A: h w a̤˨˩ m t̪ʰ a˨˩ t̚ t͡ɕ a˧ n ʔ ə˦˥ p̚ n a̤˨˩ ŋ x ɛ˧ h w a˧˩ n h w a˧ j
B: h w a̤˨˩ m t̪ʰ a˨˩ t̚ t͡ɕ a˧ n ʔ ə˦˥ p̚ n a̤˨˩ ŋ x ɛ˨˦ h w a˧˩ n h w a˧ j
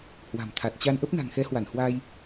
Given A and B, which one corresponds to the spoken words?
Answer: B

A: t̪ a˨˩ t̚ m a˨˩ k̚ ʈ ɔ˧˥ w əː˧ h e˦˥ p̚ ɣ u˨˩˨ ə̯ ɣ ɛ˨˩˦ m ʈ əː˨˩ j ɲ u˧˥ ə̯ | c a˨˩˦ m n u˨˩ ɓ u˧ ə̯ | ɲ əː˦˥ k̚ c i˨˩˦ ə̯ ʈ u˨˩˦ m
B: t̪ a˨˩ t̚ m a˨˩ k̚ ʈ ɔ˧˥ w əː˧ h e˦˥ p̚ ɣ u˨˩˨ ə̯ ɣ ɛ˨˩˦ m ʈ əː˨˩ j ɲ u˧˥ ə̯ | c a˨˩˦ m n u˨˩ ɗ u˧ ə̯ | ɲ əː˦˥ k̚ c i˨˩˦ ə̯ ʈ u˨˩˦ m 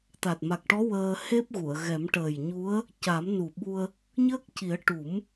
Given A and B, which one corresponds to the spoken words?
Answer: A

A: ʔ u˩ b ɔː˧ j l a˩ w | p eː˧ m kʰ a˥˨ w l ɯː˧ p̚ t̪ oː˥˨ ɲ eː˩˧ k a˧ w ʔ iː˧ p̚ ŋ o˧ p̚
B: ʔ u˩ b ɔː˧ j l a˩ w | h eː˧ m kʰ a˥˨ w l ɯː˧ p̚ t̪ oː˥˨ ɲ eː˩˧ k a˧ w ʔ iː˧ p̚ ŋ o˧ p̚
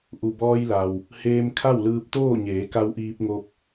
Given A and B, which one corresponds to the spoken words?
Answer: B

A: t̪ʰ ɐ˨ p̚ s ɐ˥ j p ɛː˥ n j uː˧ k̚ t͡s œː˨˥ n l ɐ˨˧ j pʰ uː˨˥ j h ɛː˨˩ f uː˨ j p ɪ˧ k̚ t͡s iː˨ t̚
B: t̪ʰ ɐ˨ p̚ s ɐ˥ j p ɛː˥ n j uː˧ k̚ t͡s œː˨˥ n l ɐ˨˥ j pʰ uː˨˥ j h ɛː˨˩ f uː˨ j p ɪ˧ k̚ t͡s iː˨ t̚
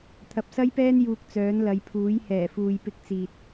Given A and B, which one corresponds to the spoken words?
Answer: A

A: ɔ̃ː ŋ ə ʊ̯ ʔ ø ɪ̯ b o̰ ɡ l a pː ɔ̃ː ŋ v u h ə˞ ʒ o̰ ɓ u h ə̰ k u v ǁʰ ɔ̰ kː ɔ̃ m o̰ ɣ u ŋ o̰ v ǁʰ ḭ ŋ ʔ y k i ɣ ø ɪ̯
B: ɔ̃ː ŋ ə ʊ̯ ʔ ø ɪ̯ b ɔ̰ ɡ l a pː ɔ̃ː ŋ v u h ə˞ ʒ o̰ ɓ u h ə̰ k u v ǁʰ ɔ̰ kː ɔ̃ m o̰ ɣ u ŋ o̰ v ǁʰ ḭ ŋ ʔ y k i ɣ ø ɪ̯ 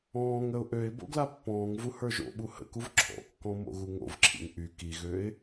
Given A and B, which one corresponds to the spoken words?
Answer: A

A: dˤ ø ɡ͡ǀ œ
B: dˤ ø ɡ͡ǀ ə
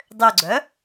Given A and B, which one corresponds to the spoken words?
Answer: A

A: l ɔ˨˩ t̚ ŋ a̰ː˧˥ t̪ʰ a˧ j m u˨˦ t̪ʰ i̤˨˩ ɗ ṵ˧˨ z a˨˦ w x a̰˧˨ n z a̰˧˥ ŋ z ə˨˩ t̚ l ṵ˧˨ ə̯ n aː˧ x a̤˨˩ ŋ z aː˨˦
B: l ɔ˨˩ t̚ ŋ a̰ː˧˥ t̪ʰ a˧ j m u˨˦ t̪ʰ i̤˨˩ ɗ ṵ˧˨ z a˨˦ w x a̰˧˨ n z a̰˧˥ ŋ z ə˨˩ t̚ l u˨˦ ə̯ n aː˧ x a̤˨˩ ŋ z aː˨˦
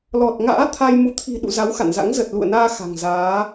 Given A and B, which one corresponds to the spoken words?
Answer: A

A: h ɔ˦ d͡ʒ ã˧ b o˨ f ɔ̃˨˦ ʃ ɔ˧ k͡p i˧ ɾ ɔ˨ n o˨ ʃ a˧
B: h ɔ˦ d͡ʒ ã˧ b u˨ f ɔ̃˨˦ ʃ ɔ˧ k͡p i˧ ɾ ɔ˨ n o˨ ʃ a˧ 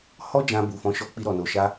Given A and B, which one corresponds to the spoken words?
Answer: B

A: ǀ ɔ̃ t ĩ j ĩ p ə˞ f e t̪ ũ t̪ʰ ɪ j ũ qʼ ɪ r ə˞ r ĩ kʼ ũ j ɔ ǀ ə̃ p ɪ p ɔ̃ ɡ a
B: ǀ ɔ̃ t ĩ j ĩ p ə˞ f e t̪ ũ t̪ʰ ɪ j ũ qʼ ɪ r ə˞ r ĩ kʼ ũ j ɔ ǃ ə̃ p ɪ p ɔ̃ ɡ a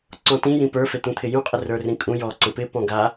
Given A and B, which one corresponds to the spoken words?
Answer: A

